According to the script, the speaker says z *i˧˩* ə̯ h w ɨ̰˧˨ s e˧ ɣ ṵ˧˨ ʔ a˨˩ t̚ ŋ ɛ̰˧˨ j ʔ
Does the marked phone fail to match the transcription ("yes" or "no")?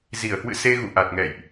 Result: no